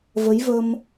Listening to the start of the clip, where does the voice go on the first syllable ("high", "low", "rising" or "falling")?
rising